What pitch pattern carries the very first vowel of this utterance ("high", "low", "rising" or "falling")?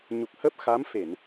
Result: low